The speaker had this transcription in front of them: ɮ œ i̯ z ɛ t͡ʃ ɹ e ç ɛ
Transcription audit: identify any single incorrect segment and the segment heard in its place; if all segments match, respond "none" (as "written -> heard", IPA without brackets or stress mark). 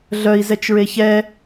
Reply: none